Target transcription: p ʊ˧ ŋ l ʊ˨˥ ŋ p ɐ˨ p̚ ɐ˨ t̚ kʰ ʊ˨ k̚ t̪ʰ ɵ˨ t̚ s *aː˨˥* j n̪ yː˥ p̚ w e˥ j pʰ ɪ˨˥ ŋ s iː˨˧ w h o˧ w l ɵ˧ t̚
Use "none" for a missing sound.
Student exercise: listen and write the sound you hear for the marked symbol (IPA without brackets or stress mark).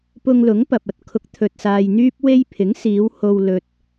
aː˧